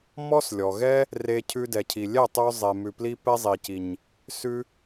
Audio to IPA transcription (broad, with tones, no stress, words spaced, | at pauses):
mɔ˦slʲɔ˨ɣɛ˦ | re˧ cʰʉ˧dɛ˨cʰi˨ lʲɛ˦˨tˤʉ˧ zˤe˨mʉ˨ pli˦pɛ˦zˤi˨ci˨ɲ | sʉ˦